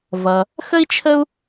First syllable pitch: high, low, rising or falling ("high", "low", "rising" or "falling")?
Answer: low